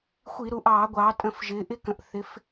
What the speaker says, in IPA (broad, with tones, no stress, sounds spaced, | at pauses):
xʷ i˧˩˧ ɾ u˩˧ ʔ ɑː˧˩˧ ɡʷ ɑː˩˧ tʼ ə̃˧˩˧ f ʒ ɪː˩˧ ʔ ɪ˦˥ k ə̃˩˧ ʔ θ ɪ˩˧ f